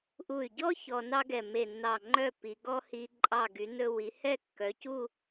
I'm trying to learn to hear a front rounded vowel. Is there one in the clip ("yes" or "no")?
yes